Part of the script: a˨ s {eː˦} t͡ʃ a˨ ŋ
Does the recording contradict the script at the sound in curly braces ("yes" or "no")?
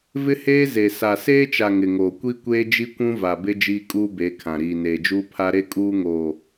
no